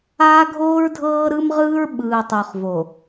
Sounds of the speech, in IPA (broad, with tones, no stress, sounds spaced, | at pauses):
aː˦ ɡʱ oː˦ ɹ dʱ ɤː˦ ɾ ɯ˦ m ʁ ɯː˦ ɹ ɓ ɯː˨ tˤ u˨ χ v o˨